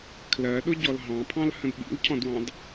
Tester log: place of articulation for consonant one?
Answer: velar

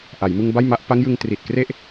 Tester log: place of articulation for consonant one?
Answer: glottal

